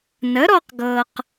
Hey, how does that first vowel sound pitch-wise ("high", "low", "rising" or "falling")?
rising